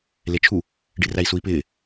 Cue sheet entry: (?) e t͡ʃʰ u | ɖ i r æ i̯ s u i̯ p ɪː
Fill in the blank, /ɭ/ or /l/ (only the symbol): l